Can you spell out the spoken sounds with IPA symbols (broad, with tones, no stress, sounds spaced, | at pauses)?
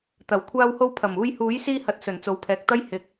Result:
t̪ ɐ˨˩ w kʷʰ aː˥ w h o˥ w pʰ ɐ˨˩ m uː˧ j h uː˨˥ j s iː˥ h ɐ˨˥ t̚ s ɵ˨˩ n t͡s o˨ w pʰ ɛː˨ k̚ t̪ ɐ˥ j h ɪ˨˥ k̚